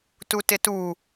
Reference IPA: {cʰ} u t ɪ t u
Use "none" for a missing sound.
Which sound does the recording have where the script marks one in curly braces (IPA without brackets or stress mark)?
t